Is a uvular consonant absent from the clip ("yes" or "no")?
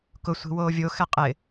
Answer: no